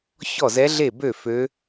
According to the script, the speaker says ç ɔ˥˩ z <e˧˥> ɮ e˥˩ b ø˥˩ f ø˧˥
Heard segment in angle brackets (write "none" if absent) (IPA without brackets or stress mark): ɛ˧˥